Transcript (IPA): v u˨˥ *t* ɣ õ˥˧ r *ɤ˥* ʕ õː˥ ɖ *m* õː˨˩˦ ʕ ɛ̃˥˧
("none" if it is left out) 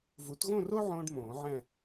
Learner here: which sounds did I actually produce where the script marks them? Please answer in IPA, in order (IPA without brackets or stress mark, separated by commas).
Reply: t, o˥, m